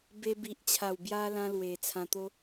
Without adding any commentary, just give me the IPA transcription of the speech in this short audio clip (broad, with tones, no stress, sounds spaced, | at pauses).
b e˦ b i˨ ʔ t͡ɕʰ a˨˩ w b j a˧ l ã˦ l w e˨˩ t͡sʰ ã˧ t̪ o˦